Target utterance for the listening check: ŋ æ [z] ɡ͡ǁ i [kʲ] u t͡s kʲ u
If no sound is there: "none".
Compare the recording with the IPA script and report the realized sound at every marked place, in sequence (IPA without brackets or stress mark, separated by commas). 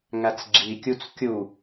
t͡s, kʲ